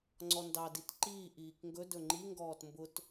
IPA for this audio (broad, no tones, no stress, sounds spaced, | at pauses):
ŋ͡ǀ ɔ n d ɑ d i t ǃ iː ʔ iː k ŋ ɡ ɵ d ɵ ŋ͡ǃ i ŋ ɡ ɔː t m b ʊ t